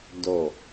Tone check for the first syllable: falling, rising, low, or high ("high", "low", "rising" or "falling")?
falling